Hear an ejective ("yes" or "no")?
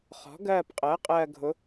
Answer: yes